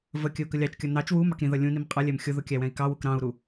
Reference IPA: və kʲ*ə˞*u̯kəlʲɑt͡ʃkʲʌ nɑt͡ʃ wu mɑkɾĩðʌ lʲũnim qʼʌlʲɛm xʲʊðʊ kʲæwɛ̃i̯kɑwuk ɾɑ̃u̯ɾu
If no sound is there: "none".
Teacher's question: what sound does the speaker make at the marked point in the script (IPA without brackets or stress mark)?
ə